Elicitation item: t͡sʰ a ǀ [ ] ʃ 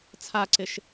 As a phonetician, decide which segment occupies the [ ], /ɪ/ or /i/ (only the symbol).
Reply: ɪ